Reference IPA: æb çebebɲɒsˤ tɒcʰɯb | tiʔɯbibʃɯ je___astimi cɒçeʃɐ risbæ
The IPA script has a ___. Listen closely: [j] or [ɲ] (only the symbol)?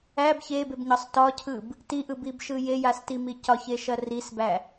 j